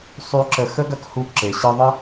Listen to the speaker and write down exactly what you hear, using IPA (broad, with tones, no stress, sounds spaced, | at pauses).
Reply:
sˤ y˧ ǁ ə˧ x ə˦ ɡ ɐ˦ k h u˧ ǁ e˨ ɕ ɨ˧ ðˤ ə˦